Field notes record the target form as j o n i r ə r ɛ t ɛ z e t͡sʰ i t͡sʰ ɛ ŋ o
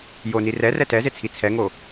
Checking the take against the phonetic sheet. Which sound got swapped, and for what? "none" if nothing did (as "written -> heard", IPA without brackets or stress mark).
ə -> ɛ